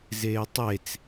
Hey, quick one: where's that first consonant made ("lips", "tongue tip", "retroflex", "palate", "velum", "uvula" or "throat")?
tongue tip